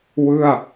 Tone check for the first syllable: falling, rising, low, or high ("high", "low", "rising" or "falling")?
falling